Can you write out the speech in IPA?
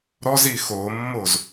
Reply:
ɾɔzi xomːoz

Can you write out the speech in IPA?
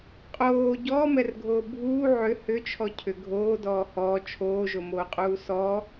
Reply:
qʼoː ɟɔːmɛrɡʱoː bʱuː ʕʏ hʏt͡ʃʰɔ cʰʏ ɡʱoːdɔː hɔː t͡ʃʰoːʒomoːqʼuː sɔ

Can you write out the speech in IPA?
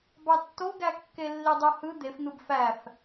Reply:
bɑtːoɡækːe lːidˤohɯ d̪efn̪ɯb fæf

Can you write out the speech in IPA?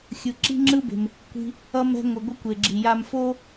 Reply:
xʲɯ˩ǁi̤˥ŋ͡ǁɯ˥be̤˩m | kʷi̤˧ | ʌ˧mɛ̤˧ ŋʷɯ˩ɡʷʌ˧kʷe˩ɡ͡ǁi˩ ja˧mfo˥

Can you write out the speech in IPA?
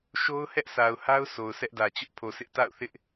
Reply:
ʃo˦ʊ̯hɛ˦ʔsa˨ʊ̯ha˦ʊ̯ so˨ʊ̯sʰɛ˦ʔdä˨ t͡ɕʊ˦ʔpʰo˨sʰɪ˦ʔ ta̰˦˨ʊ̯θɪ˦ʔ

